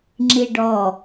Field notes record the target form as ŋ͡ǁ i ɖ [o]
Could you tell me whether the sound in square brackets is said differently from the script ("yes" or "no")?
yes